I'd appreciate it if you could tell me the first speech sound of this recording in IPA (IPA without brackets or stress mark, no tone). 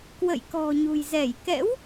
k